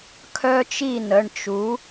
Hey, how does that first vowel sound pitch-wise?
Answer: high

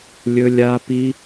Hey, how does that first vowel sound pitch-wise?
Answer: high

